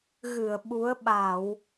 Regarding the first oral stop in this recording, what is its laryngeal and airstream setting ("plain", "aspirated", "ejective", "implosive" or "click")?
implosive